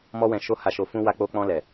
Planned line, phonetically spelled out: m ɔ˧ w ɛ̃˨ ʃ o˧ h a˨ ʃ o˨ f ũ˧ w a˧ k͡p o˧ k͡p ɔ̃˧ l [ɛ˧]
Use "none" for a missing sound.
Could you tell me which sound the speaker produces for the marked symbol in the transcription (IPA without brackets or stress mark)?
ɛ˨